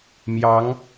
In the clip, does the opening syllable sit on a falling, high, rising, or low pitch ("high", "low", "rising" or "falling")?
rising